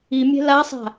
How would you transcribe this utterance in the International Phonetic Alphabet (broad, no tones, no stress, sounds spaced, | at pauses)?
i mʲ ɛ̤ l a sˤ a̤